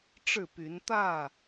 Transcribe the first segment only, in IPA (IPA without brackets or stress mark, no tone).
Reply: ʈ͡ʂ